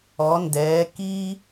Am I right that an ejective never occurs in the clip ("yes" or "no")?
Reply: yes